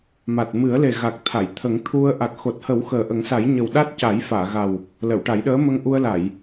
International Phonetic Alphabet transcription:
ma˨˩t̚mɨ˨˩˦ə̯le˨˩ ɣa˨˩k̚t̪ʰa˨˩˨j t̪ʰə˨˩˦ŋt̪ʰu˧ə̯ ʔa˨˩k̚xo˨˩t̚hə˨˩˦w xəː˨˩ʔə˨˩˦ŋsa˨˩˦j ɲə˨˩wɗa˦˥t̚ ca˨˩˦jfaː˨˩˨ɣa˨˩w | lə˨˩˨wʈa˨˩˦jɗəː˧˥ mə˧ŋʔu˧ə̯ la˨˩˨j

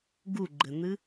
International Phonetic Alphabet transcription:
ɡuɡ͡ǃɘn̪ɨ

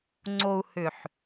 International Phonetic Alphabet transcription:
ŋ͡ǀo˨u̯ hʏ˨ħ

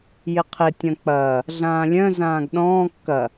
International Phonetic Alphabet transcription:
jɪqʰɪ tʲɐ̃k͡pɐː | ɮãːlʲœ̃ zãːɡɗɔ̃ː kːɐ

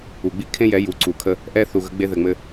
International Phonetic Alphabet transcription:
u˨ɡ͡bi˦ kʰẽ˦jɛ˨˦ ju˨ǀu˨kʰə˦ | ʔɛ˦ θu˨ɣə˨˦ ɡ͡be˦ðɘ˨ŋ͡mɘ˦

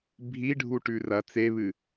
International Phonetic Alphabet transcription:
bʱiɖʱu ʈʉrɐ t͡seβɨ

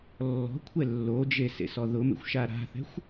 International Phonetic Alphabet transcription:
lːɔ̤kʷʰɛ lːod͡ʒe sḛsɔðʊmḛxʷ ʃaɾa̤θɛ̤xʷ

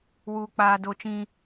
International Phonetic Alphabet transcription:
wuː˦k͡paː˦ do˦t͡ʃĩ˦

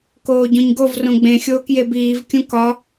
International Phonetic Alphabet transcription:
koːɟõɲɡov rõɡ͡bẽ xʲoːkjebiːv kʲũkɒ

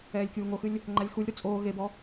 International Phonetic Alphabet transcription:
ɛːlʲkʲuːŋoxɨlʲ | ŋ͡ǃalʲxulʲɾu t͡sʼoː ɣebɔ

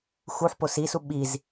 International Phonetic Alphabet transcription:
xuħpo sisu ɓiz

